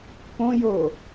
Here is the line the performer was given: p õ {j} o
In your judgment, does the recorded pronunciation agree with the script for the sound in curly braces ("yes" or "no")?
yes